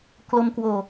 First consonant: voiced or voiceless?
voiceless